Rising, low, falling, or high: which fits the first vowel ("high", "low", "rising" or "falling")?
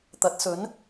rising